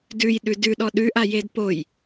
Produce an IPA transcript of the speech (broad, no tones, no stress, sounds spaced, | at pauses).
d ʉ j ɗ ʉ d ʉ ɗ ɔ ɗ ʉ ʔ a j e d p o j